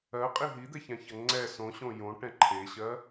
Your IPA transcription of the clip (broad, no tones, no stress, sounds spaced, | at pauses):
ɜ qʼ i ɦ i d̪ ɛ ç ã ç ɐ ŋ͡ǀ ɛ s õ ɕ õ j õ ʈ ɛ̃ ǃʰ e ɕ ɜ